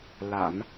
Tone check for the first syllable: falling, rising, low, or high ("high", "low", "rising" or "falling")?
low